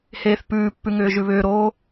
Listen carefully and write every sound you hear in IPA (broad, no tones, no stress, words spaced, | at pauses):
heːθpʉːpːʉŋʏː ʒʉβʏːɾoː